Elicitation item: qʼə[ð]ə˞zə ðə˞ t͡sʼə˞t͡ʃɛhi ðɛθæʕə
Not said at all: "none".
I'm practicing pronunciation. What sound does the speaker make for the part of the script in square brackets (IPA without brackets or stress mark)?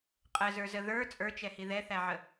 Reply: z